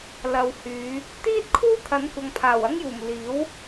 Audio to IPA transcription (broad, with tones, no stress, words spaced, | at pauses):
lɐ˧w hyː˨˧ | t̪iː˥t̚kʰuː˥ t̪ʰɐ˨˥nkʷɐ˨ŋpʰaː˨˩w ɐ˧ŋjuː˨˩m liː˨˥w